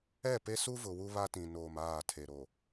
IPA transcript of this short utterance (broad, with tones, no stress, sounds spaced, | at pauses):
ɛ˦˨ p e˦ s u˦ v ʊ˨ w u˦ β a˦ t ĩ˨ n oː˨ m aː˦˨ tʰ e˨ ɾ o˨